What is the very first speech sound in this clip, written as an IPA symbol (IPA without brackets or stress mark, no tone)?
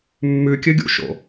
mː